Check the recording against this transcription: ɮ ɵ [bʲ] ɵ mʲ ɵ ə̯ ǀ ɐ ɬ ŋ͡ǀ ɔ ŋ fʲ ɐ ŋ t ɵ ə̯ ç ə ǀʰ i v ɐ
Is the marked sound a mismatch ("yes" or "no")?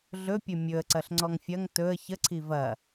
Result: yes